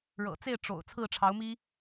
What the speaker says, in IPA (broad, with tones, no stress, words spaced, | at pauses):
ɻɤ̰˨˩t͡se˥˩ɪ̯ ʈ͡ʂo̰˨˩ʊ̯ t͡sʰɹ̩˥˩ʈ͡ʂʰɑ˧˥ʊ̯mi˥